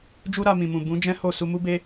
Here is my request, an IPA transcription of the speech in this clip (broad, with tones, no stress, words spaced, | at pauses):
d͡ʒu˦ɾa˧mĩ˨mũ˨ bũ˨˦d͡ʒɛ̃˦ ho˦˨ su˧mu˦be˦